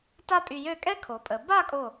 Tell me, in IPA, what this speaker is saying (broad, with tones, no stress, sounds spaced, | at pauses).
t a˥ pʼ y˧ j ø˥˧ kʼ ɛ˥ kʰ o˩˧ pʼ ə˩˧ b a˥˧ kʼ o˧˩